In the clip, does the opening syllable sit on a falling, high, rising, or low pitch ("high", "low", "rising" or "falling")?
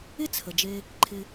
high